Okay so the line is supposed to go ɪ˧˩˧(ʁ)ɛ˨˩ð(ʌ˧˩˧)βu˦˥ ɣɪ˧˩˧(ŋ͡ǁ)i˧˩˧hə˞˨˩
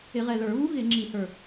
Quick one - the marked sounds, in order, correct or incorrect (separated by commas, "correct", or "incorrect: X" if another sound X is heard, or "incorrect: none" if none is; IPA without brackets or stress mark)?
correct, incorrect: ə˞˧˩˧, correct